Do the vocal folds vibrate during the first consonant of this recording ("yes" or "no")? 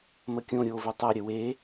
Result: yes